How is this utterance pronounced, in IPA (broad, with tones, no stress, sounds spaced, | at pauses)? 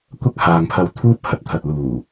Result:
kʷ ɐ˥ k̚ h aː˨ ŋ pʰ ɐ˧ w t̪ʰ uː˥ p̚ h ɐ˨ t̚ t̪ʰ ɐ˨ t̚ l uː˨˩